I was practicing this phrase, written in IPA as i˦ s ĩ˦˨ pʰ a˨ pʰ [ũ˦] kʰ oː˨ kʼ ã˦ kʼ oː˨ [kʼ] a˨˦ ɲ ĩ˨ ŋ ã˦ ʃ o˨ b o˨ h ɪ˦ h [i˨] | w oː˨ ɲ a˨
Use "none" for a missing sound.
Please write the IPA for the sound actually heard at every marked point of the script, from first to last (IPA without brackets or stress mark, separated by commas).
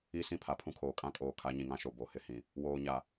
ũ˦, kʰ, ĩ˨